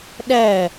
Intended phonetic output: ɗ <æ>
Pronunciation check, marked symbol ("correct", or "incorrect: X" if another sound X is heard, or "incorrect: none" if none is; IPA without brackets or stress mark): correct